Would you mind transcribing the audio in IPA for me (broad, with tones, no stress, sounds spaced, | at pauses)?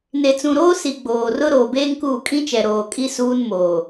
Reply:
n e˨ t͡s ũ˨ ɾ oː˦ s i˨ ɡ͡b oː˨ r ʊ˦ ɾ oː˨ b eː˦ ŋ k uː˦˨ kʼ ĩ˦ t͡ʃ ɛ˨ ɾ oː˨ kʼ i˦ s uː˦ n m oː˨